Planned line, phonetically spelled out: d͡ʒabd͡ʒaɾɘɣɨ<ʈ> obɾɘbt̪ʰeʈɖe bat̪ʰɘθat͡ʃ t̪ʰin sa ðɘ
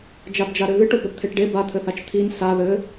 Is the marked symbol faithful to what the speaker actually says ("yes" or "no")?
yes